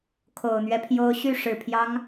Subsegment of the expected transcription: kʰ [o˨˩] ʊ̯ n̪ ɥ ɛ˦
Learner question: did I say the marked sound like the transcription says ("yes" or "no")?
yes